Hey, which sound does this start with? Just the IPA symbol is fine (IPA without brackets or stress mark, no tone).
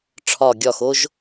ʈ͡ʂʰ